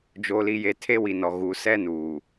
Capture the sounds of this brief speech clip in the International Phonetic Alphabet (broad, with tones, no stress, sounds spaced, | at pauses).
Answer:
d͡ʒ o˨ l i˨ j e˨ tʰ e˦ w i˨ n ɔ˨ ɣ u˨ s ɛ˦ n uː˨